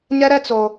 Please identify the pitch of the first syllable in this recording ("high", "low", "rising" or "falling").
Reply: high